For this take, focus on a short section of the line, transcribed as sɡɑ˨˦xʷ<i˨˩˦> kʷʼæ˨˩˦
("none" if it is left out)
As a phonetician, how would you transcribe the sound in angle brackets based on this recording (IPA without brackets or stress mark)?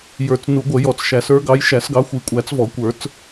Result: i˨˩˦